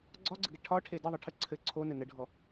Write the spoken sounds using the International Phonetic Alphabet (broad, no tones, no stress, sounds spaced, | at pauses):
ɡ͡ǀ ɒ ɡ͡ǀ ə ɡ ɛ ʈʰ ɒ ʈʰ e d ə ðˤ ɯ ʈʰ ə ǀʰ ɘ ǀʰ o n ɘ n ə ɖʱ ɔ